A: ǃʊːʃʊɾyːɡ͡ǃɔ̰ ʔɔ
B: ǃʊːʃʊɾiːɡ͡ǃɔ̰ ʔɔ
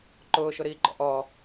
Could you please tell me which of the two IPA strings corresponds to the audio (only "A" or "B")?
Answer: B